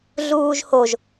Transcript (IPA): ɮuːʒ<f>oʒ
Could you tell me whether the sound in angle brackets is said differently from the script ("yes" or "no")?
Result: yes